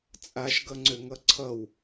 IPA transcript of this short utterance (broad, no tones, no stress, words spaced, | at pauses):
t͡sʼaʃɡʌŋ͡ǀøŋʌ ǀʰʌw